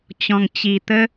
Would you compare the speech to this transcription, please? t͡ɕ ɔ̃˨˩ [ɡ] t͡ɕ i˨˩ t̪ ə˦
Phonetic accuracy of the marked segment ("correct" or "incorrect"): incorrect